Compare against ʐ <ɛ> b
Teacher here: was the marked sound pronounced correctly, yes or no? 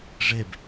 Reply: no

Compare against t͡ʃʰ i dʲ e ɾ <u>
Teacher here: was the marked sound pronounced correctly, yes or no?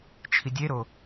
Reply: no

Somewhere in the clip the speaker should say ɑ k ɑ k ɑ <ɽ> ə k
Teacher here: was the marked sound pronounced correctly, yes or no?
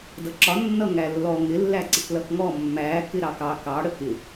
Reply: yes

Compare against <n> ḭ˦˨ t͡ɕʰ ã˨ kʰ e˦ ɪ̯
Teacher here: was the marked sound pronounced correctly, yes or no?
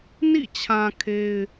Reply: yes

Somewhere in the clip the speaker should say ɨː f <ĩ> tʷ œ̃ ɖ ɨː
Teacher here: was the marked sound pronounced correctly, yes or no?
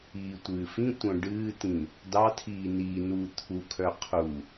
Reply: yes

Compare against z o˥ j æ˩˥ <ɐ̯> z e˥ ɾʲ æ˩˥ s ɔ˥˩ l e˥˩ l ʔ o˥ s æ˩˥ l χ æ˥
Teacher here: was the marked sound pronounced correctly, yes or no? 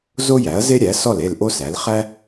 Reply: yes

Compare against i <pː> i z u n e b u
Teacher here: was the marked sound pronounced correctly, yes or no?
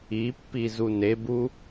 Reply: yes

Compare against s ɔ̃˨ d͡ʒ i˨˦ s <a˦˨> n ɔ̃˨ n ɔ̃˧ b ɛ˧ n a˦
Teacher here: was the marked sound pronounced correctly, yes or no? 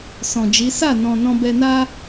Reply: yes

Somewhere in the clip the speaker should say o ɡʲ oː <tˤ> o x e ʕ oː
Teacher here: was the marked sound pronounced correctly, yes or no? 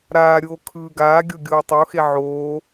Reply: yes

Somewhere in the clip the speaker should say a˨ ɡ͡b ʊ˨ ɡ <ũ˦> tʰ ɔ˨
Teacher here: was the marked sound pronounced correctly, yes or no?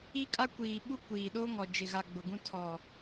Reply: yes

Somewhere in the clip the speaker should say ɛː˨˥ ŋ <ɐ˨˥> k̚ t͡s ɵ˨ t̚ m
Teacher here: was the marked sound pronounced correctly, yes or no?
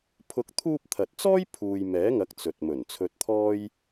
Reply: yes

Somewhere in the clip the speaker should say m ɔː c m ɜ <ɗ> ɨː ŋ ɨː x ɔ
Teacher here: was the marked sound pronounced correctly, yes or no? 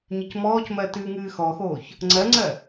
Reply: no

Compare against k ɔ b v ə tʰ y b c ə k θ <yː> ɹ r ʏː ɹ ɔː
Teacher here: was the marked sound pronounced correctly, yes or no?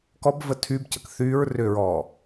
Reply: yes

